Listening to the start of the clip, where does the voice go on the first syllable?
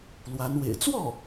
rising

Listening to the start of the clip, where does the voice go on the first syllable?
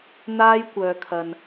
high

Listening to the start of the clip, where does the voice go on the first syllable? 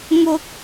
high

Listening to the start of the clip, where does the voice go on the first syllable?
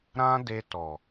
high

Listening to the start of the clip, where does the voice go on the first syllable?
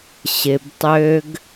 low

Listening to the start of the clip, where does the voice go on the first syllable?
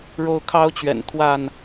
high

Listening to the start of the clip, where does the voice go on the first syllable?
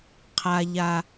low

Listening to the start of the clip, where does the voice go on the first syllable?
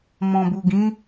low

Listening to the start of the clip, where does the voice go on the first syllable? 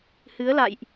rising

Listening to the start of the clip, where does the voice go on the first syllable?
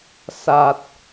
low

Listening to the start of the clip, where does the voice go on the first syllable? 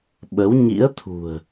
rising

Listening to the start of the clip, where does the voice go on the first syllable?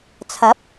rising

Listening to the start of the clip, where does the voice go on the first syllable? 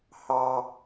high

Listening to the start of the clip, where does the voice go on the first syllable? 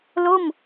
falling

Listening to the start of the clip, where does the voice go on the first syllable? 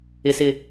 low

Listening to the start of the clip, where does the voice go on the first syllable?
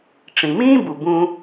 low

